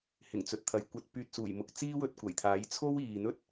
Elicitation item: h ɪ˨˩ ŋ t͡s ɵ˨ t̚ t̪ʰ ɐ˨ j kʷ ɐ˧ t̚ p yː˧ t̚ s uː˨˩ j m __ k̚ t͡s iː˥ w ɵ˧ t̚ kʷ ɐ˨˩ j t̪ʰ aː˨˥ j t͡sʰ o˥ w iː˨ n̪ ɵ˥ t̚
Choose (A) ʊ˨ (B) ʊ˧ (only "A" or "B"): B